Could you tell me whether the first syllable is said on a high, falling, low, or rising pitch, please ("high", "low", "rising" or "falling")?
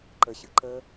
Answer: low